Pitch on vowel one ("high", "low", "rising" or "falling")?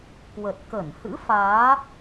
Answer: low